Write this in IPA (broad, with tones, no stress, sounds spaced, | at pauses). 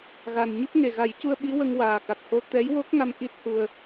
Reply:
ɣ a˨˩ n ɲ ɨ˦˥ p̚ ŋ e˨˩ ɣ a˨˩˦ j c u˧ ə̯ ɓ i˧˥ w ə˧ ŋ w aː˨˩ k a˨˩ k̚ h o˧ t̪ ɛ˧˥ j w o˦˥ k̚ ŋ a˧ m ʔ i˦˥ t̚ h u˧ ə̯